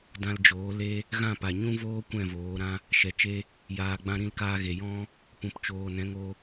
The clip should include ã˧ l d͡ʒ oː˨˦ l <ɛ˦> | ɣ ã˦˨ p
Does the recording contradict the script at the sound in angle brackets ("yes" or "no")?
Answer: yes